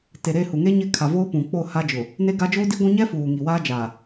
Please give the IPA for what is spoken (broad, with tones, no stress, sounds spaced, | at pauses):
t e˨ ɾ e˦˨ h u˨ ŋ e˦ ɲ ɪ˦ kʰ a˨ v oː˦ p ũ˨ k͡p o˦˨ h a˦ d͡ʒ ʊ˨ | n e˦ ɡ a˦ d͡ʒ oː˦ d i˦ ɡʷ ũ˦ ɲ ɛ˦ f uː˨ ŋ i˨ w aː˦ d͡ʒ aː˨